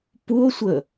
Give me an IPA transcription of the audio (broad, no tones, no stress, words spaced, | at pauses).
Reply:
puo̯sʷə